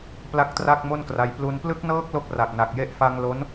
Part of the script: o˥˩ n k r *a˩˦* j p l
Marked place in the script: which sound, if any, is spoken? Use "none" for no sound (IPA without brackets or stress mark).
a˧